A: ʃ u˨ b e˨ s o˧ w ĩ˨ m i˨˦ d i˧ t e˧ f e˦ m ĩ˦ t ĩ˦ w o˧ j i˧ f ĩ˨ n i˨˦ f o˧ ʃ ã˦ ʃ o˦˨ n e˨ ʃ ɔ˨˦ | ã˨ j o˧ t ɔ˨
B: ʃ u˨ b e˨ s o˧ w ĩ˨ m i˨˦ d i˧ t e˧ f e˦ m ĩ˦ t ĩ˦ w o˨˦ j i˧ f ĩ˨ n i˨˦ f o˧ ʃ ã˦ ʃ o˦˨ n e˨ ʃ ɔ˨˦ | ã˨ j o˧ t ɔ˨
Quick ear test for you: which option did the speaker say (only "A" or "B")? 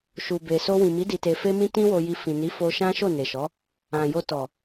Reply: A